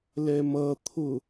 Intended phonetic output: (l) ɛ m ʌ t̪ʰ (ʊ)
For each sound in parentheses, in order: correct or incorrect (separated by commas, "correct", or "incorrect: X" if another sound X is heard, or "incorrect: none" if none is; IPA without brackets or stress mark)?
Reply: correct, correct